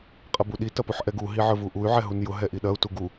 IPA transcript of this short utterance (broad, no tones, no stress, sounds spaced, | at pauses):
qʼ ɐ b u ɗ i t ɐ p u ħ ʔ ɛ ɡ u ɦ i ʕ ə˞ v u ʔ u y̯ ʕ ɛ ɦ u n j ʊ ɦ ɛ ʔ i ɗ ɐ u̯ t u ɡ u